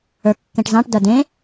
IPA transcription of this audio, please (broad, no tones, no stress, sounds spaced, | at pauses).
ə˞ kː ẽ ʈ z ɑ̃ ʈ d ɐ d ẽ